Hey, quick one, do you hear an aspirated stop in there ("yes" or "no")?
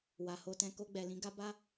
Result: no